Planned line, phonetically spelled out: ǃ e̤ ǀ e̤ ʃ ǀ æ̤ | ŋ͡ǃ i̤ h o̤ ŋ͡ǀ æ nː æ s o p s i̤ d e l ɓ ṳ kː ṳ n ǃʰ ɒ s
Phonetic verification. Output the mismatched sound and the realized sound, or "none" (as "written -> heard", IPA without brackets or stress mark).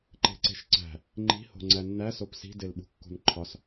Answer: none